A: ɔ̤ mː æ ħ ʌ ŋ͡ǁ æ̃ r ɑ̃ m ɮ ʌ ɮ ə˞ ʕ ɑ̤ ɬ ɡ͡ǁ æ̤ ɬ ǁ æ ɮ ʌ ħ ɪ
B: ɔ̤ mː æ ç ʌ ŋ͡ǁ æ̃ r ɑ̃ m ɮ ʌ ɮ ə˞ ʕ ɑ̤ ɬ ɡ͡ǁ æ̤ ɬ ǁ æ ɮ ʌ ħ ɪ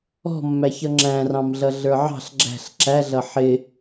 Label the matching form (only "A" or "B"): B